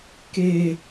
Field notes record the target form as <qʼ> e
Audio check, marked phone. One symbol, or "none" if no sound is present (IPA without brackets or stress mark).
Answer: k